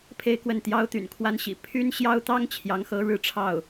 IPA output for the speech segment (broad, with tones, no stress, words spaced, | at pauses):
pʰe˥˧ɪ̯kwə˥˩n t̪jɑ˥ʊ̯t̪y̰˨˩nkʰwa˥nɕḭ˨˩ pʰy˥nɕjɑ˥ʊ̯t̪ɑ˥ŋ t͡ɕʰjɑ˧˥ŋxɤ˧˥ ɻɻ̩˧˥ʈ͡ʂʰɑ˥˩ʊ̯